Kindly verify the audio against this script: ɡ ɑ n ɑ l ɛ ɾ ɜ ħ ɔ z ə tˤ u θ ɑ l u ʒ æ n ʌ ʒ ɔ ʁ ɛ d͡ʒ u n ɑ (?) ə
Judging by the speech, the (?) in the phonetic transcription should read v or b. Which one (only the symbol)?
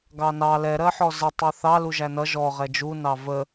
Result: v